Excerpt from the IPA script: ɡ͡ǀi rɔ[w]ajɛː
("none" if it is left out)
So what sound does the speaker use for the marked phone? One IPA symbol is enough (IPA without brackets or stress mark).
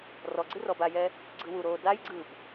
b